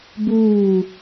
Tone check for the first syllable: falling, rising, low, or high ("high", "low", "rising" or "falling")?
falling